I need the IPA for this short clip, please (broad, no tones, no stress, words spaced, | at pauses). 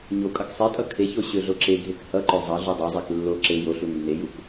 ɲo kʼʌksˤetʼʌ kʰeço ɕøɮoǁeɡʱek hʌǃø zˤʌ ɮudˤøzˤek lːo ǁe joɬu nːejuk